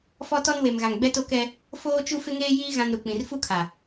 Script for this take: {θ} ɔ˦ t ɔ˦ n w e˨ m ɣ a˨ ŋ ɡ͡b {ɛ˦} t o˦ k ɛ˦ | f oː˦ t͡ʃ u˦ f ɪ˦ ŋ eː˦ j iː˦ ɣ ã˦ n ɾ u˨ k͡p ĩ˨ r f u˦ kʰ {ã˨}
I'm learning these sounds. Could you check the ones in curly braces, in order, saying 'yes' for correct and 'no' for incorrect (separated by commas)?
no, yes, no